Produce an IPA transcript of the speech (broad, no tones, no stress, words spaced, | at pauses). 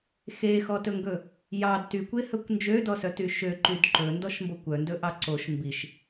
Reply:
xexɔtɵŋɡɵ | jɑd tykʷehɵkʷ nd͡ʒødɔsœty ʃøǃyd ǃɵndɔʃmbokʷ œndɵʔɑ ǀoʃ mbiʃ